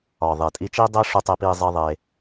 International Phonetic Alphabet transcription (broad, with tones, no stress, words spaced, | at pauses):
ɒ˨ ðˤe˨tʼi˧t͡ʃi˦dˤe˦ ʂu˧tˤe˧pi˧zˤi˧ ðˤe˧